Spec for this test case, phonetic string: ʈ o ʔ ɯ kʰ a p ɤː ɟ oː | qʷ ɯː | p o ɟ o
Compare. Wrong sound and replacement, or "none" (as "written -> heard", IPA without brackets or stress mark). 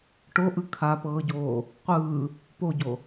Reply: none